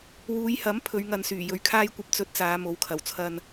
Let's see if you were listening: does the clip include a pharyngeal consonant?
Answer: no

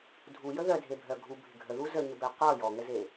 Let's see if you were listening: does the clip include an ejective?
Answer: no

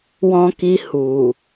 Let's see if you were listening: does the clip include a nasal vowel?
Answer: yes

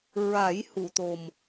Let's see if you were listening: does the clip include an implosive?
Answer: no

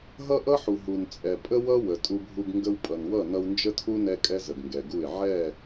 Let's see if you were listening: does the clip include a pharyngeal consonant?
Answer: yes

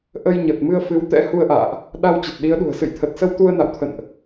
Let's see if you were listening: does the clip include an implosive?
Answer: yes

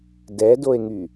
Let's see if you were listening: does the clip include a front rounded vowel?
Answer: yes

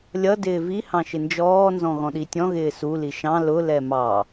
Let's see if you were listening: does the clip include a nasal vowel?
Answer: yes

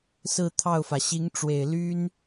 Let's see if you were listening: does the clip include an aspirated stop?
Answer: yes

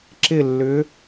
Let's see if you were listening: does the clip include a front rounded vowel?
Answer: yes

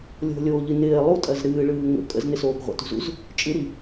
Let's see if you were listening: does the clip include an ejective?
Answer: yes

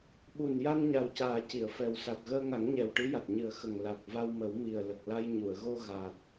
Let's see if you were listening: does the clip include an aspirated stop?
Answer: no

